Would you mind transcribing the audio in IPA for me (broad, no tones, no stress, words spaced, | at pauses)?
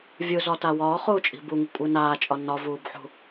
vʲɯzɒta wɒːχuːt͡ʃʼi̤ buŋi̤kʷʼɯ naːt͡ʃʼɒ nɒvuːbħṳ